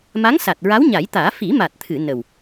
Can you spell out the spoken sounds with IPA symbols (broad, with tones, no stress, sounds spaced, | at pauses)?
m a˧˥ ŋ s a˨˩ t̚ ɹ a˧˥ w ɲ a˨˩˦ j t̪ aː˨˩˦ f i˨˩˦ m a˨˩ t̚ t̪ʰ ɨ˨˩˨ n ə˨˩ w